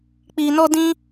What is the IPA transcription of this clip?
k͡pi˧nɔ˦dĩ˦

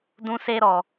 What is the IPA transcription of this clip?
dũ˦se˦ɾɔ˧

